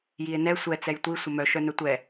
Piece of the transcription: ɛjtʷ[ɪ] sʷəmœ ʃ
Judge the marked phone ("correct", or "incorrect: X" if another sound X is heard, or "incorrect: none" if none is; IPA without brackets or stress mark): incorrect: i